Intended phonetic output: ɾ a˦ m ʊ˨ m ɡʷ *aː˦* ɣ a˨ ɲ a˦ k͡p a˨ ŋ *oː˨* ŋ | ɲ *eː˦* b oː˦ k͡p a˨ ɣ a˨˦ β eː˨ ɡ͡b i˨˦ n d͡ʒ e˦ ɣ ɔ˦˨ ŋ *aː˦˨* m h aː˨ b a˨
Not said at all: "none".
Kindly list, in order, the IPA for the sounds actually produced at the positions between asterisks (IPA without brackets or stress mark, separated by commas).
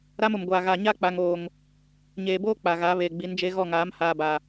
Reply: aː˨, oː˨, eː˨, aː˨˦